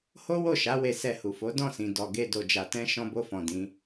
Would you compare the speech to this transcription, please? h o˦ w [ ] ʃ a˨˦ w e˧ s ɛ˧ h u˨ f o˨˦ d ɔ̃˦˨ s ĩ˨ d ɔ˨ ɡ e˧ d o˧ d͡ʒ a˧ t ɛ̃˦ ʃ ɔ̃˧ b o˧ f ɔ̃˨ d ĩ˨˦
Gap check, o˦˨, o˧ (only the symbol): o˦˨